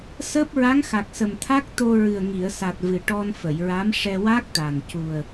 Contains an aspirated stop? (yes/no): yes